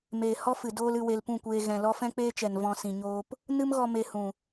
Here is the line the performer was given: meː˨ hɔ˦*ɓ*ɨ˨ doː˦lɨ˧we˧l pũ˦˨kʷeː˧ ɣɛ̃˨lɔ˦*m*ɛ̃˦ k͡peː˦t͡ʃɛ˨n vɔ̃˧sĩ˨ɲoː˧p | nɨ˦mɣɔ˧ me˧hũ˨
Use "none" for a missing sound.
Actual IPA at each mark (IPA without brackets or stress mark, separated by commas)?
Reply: f, f